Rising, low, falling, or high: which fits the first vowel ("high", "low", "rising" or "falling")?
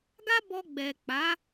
high